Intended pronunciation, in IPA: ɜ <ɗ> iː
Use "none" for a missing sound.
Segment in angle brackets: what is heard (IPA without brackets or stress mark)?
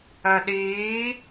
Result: ɗ